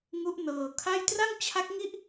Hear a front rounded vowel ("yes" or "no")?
no